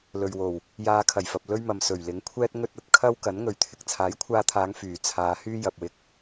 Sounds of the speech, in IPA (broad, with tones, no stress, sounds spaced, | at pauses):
l ɵ˨ ɥ w o˨˩ w | j aː˧ kʰ ɐ˨˩ j f ɐ˨ p̚ l ɵ˥ ɥ m ɐ˨ m s ɵ˨˩ ɥ l ɪ˨˥ ŋ kʷʰ ɛː˥ t̚ ŋ ɵ˥ t̚ ɐ˨ t̚ kʰ ɐ˥ w k ɐ˨˥ n ŋ ɵ˨ ɥ t̪ʰ ɪ˨ k̚ t͡sʰ aː˨˥ j kʷʰ aː˧ t̪ʰ aː˨˧ ŋ f yː˨˩ t͡sʰ aː˨˧ h yː˥ j ɐ˨ p̚ w ɪ˧ k̚